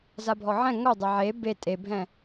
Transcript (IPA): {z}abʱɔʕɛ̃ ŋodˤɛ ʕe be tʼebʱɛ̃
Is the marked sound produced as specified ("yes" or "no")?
yes